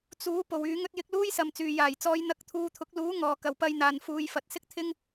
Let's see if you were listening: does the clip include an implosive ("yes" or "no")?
no